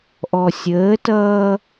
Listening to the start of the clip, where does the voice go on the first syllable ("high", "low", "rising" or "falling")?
low